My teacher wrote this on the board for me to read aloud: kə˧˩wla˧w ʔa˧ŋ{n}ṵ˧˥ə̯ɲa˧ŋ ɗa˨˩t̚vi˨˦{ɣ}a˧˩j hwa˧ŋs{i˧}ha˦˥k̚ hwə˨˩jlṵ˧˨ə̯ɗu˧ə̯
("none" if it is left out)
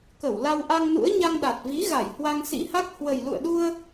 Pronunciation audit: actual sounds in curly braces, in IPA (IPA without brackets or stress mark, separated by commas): n, ɣ, ḭ˧˥